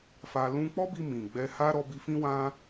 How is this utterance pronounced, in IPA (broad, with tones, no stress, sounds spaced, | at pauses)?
f a˧ l ũ˧ k͡p ɔ˦ b i˧ m ĩ˨ ɡ͡b ɛ˧ h a˦ ɾ ɔ˧ b i˧ f ĩ˦ w ã˦